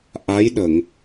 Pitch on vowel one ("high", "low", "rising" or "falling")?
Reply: rising